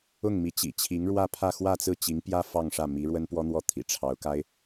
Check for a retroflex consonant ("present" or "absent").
present